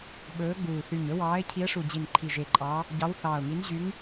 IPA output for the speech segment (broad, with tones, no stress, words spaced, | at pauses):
ɓɵː˨˦ɡ͡buː˨˩ θy˨˩ɲɵ˨˦wɑː˨˦ɪ̯ cʰi˨˦ə̯ʂu˨˩ d͡ʑi˨˩nǃʰi˨˩ ʒe˨˩ǃʼɑ˨˦ | ɟɑ˨˦wθɑː˨˩ʊ̯ŋi˨˦n ʑy˨˦ŋ